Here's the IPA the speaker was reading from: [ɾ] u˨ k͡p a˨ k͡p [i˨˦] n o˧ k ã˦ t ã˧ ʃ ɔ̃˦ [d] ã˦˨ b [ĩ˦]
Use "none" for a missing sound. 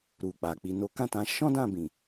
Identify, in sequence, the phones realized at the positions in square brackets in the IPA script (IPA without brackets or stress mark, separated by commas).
ɾ, i˨, d, ĩ˨